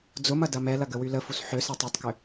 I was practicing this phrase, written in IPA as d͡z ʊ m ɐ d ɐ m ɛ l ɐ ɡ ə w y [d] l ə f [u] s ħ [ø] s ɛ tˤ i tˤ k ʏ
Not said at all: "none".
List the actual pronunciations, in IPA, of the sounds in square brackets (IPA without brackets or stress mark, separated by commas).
none, u, ø